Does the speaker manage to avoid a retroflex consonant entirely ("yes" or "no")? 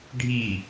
no